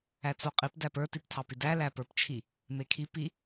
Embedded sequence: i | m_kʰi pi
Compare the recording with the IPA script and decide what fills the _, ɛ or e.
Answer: e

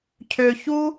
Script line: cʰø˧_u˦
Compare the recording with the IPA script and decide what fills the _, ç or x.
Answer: ç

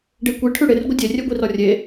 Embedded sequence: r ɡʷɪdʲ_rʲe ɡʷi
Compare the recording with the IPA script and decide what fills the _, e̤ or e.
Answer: e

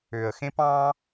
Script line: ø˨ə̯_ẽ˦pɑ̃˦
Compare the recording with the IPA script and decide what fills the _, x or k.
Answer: x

